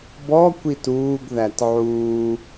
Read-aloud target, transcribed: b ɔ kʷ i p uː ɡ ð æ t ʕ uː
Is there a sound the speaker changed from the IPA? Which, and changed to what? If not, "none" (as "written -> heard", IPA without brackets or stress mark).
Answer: p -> t